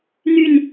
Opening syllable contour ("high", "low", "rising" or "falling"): falling